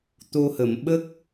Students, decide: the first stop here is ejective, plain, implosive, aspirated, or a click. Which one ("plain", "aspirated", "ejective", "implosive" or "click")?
plain